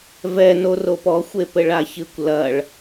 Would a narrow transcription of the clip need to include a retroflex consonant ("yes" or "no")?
yes